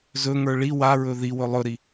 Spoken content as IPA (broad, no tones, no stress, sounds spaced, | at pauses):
z ɵ ŋ ə˞ ɭ i w a ɹ ɵ ð i w ɵ lˠ ɵ ɾ i